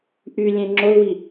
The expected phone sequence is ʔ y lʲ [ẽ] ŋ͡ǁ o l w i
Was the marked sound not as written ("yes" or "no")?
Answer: no